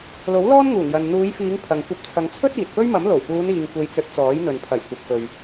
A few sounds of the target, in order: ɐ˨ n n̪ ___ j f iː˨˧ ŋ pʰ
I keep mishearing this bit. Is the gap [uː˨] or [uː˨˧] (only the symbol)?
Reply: uː˨˧